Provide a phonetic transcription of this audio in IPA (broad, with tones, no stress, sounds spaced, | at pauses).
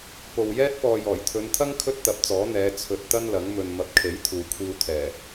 p o˨ w j ɛː˥ t̚ p ɔː˨ j ɔː˨˩ j t̪ʰ ɵ˨˧ n t̪ʰ ɐ˥ ŋ kʰ ɵ˥ t̚ t̪ ɐ˨˥ p̚ t͡s ɔː˨˥ n̪ ɛː˨˧ t͡sʰ ɵ˧ t̚ t̪ ɐ˥ n l ɐ˨˥ ŋ m ɵ˧ n m ɐ˨˥ p̚ kʰ e˨˥ j t̪ʰ uː˨ kʷʰ iː˧ w t̪ʰ ɛː˨˩